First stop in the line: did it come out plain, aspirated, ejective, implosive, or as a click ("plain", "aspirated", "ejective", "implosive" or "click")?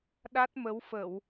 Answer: implosive